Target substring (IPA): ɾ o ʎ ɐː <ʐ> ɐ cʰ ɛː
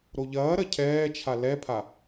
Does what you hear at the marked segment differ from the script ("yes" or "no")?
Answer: yes